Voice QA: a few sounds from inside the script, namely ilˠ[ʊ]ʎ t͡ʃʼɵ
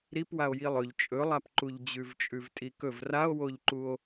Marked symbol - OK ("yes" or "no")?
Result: no